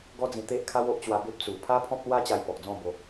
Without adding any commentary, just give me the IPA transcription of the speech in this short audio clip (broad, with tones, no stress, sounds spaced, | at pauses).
ɡ ɔ˦ d͡z ĩ˧ t̪ e˦ ʔ kʰ a˦ w o˦ ʔ t͡ɕ w a˧ b e˦ p̚ t͡s u˨˩ pʰ a˦ pʰ ɔ̃˦ p̚ l w a˦ t͡ɕ a˧ j p ɔ˨ k̚ d͡z ɔ̃˥˧ b o˧